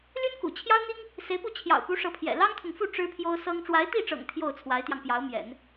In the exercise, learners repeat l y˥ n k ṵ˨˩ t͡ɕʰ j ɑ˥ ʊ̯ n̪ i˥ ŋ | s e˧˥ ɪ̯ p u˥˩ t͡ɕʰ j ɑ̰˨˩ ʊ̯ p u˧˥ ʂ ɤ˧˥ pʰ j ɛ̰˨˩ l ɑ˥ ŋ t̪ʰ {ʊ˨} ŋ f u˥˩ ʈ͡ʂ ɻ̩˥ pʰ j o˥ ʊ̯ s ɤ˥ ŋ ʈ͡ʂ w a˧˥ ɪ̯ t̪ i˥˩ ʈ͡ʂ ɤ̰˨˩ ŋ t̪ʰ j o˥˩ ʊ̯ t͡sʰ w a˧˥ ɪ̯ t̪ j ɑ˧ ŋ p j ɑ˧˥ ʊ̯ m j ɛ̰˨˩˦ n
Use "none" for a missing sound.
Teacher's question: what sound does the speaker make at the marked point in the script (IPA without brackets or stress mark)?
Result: ʊ˨